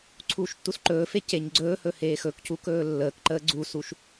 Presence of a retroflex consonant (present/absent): absent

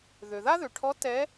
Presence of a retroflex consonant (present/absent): present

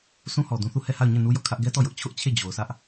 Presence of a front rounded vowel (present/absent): absent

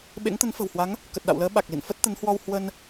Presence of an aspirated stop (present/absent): absent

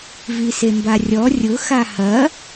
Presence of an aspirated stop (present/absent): absent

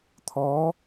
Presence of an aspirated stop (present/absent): present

